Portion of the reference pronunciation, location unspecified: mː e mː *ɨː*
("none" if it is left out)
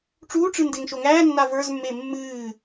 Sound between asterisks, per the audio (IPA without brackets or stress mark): ɨː